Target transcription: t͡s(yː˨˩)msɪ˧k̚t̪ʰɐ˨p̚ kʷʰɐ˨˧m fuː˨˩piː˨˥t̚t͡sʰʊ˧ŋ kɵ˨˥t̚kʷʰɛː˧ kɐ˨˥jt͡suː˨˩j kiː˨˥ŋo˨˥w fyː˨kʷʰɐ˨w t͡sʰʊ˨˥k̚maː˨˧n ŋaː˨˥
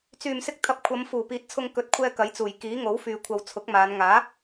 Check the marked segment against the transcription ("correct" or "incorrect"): correct